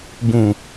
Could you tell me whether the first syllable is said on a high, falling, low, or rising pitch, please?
low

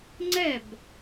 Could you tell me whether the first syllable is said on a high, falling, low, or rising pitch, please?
falling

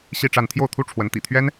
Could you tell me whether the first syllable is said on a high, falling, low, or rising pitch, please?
falling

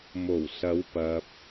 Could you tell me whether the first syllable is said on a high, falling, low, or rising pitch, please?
low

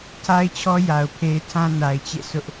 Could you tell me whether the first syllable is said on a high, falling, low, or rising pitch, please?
high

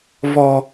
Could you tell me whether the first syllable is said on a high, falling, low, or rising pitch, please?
low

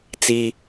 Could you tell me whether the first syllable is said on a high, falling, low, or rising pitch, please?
high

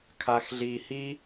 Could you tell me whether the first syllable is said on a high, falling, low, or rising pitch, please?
low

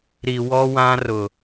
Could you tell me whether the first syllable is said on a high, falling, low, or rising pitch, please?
low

